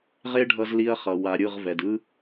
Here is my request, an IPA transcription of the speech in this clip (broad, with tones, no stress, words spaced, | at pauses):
ʁe˦ɖʱʌ˧zli˧ɐ̯χʌ˨ wa˨ ɾʲɯ˦˨ʁvɛ˨dɯ˦